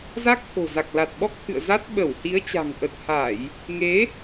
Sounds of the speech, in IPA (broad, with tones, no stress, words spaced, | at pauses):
za˦˥k̚t̪ʰo̤˨˩za˨˩k̚la˨˩t̚ ɓɔ˦˥k̚t̪ʰɨ̰˧˨ə̯ za˦˥t̚ ɓə˧˩whi˨˦ə̯ t͡ɕa̤˨˩ŋ ʔə˨˩t̚ha˧˩˨j | ŋe˨˦